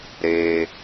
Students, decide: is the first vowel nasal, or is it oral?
oral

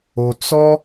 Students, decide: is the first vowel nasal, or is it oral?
oral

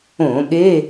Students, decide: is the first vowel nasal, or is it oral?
nasal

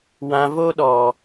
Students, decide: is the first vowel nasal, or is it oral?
nasal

